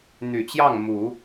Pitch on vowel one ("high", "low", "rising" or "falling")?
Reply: low